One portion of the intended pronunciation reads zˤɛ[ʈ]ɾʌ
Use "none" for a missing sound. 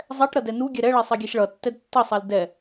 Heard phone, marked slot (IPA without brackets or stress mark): ʈ